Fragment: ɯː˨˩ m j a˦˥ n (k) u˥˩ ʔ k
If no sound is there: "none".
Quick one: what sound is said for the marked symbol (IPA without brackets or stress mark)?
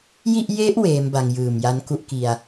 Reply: k